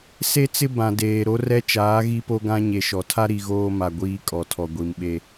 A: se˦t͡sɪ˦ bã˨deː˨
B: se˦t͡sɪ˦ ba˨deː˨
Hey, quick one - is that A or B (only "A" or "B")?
A